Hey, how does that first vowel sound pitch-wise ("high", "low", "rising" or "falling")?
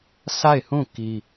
falling